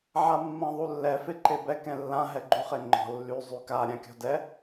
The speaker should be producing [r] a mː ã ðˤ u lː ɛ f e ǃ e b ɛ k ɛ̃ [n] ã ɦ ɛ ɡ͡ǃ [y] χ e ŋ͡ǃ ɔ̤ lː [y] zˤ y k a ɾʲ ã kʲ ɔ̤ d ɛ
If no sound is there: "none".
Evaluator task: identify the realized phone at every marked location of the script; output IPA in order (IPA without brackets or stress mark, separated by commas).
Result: ʕ, lː, y, y